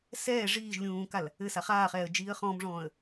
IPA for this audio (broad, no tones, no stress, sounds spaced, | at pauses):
s ɛː ʐ iː ʒ lʲ ũː k a l | ɘ s a χ aː χ ɛː ə̯ d͡ʒ iː ə̯ χ ɔ̃ m ʐ ɔ̃ː ə̯